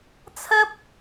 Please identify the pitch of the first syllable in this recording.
high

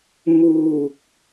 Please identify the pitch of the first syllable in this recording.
low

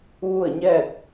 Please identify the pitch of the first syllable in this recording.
falling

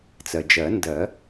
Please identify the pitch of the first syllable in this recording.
low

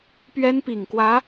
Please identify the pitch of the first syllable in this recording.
high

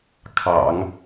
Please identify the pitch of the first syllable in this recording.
low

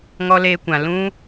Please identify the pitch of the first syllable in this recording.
high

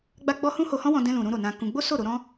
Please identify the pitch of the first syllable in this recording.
high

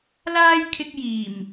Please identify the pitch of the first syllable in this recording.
high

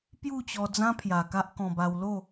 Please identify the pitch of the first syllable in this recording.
falling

